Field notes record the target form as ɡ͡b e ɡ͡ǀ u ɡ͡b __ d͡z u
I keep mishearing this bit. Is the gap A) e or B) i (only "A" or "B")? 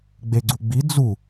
B